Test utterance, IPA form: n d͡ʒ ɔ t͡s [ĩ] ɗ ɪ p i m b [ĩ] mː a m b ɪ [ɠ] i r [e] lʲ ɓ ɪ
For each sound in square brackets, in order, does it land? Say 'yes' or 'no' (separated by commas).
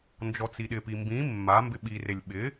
no, yes, no, yes